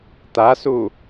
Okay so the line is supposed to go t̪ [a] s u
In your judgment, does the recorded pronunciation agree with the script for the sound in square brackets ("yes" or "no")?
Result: yes